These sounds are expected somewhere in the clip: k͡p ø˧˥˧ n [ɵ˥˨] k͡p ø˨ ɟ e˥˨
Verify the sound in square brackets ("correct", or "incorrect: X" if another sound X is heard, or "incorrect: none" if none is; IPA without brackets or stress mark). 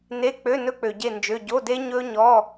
incorrect: ɵ˥